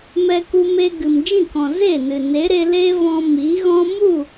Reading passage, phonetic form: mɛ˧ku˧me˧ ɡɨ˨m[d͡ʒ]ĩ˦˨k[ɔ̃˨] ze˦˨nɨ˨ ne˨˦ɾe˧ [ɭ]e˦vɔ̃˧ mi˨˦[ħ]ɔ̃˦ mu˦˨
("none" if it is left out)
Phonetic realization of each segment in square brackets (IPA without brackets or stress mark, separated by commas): d͡ʒ, ɔ̃˨, l, ɣ